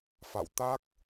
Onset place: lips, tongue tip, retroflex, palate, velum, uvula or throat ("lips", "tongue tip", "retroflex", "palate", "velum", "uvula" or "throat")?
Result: lips